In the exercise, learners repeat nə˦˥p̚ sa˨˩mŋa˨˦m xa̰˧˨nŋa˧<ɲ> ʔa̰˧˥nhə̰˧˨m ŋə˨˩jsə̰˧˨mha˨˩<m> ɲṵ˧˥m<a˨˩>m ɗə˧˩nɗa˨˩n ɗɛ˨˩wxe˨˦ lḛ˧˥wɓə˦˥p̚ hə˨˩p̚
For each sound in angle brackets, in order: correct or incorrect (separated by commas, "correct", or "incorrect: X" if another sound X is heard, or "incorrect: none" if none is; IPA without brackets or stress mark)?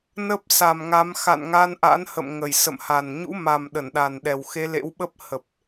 incorrect: n, incorrect: n, correct